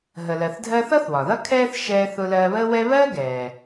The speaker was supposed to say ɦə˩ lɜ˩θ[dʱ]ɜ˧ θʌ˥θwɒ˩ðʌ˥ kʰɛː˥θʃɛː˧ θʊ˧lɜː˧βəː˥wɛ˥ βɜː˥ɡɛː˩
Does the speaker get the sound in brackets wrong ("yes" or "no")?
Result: no